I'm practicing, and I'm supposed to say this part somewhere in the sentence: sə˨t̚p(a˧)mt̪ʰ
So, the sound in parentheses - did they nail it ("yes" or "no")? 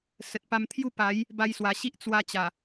yes